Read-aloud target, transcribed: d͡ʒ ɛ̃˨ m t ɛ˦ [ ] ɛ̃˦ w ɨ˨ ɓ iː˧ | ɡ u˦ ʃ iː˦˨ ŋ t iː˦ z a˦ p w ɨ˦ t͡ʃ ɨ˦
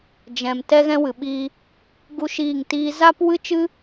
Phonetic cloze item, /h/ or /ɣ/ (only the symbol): ɣ